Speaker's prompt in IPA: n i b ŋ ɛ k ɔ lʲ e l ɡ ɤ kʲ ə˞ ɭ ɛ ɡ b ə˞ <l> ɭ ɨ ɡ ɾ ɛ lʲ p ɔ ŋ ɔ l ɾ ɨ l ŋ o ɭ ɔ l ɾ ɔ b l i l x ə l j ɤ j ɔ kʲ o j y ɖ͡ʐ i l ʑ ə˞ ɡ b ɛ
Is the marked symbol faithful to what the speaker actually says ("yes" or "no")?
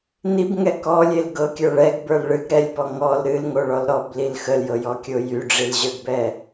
yes